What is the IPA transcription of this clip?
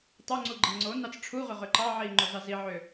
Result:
tˤ o ŋ͡ǀ u ɡ͡ǃ i ŋ͡ǀ o n ɑ t͡s ʈ͡ʂʰ u ʁ ʏ ʁ ʏ ǃ ɑ ʕ i ŋ͡ǃ o z ɑ z i ʕ ʏ

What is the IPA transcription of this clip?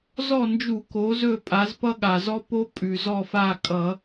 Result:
z ɔ˦˨ n d͡ʒ u˧˩˧ k o˩˧ z ɵ˦˨ pʼ a˩˧ z p ʌ˦ ɠ a˩ z ɔ˦ p o˦ pʼ ʉ˩ z ɔ˦˨ f a˦˨ kʼ ʌ˧˩˧

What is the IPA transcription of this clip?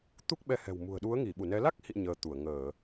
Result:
t̪ u˦˥ k̚ ɓ ɛ˧ h ɛ̤˨˩ w m ṳ˨˩ ə̯ ɗ u˨˦ ə̯ ŋ i˧˩ ɓ u˧˩ n ɛ˨˦ l a˦˥ k̚ h ḭ˧˨ ɲ əː˧ t̪ u˧˩ ə̯ ŋ əː˧˩˨

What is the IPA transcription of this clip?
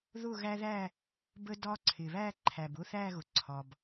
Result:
ð ʊ˥˨ ɣ æ˦ ð æ˥˨ | b ə˦ d ɒ˦ ǀʰ ɪ˩ β æ˥˨ ǃʰ æ˩ b ʊ˥˨ θ æ˥˨ ɣ ʊ˩ ǀʰ ɒ˩ b

